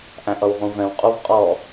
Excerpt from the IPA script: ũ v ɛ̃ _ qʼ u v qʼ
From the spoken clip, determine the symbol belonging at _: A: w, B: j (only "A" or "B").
A